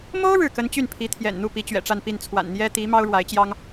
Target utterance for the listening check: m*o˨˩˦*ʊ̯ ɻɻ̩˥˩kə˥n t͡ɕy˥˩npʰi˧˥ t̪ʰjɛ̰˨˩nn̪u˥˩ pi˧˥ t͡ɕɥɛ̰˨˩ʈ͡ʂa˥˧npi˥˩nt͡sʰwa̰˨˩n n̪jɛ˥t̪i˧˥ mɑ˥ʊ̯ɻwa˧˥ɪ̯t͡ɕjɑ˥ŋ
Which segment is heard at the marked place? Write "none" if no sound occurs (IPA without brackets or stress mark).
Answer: o˥